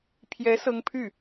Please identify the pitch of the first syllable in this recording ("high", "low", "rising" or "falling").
rising